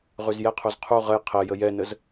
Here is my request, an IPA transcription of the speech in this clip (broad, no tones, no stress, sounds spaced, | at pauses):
ʁ ʉ z j ɛ qʰ u z qʰ u ʁ ə j qʰ ɛ j ə j ɛ n ə z